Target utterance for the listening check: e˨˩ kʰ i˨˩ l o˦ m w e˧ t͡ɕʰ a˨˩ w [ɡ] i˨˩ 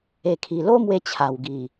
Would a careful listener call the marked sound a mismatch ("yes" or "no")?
no